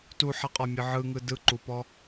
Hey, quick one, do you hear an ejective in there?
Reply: yes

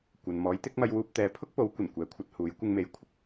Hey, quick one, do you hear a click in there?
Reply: no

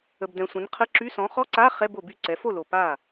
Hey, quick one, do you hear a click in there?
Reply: yes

